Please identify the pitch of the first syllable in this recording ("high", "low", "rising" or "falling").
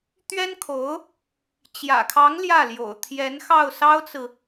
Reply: high